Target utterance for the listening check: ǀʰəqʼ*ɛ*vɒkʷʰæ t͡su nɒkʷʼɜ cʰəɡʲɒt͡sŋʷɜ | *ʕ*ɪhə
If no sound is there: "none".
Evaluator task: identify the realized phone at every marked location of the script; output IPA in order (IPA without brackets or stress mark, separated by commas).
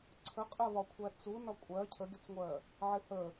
ɜ, ʕ